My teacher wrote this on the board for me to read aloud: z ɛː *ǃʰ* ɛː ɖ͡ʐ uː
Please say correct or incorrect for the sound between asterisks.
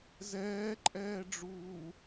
incorrect